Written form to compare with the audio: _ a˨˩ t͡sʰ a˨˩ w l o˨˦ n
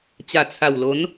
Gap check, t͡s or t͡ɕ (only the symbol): t͡ɕ